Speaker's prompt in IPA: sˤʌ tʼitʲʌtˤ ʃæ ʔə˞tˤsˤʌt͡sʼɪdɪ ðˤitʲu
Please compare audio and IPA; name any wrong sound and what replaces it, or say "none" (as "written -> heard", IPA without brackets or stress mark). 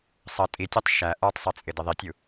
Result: none